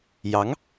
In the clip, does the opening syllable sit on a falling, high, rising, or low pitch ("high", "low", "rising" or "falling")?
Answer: rising